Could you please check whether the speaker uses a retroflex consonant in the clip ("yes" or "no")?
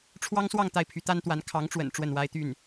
yes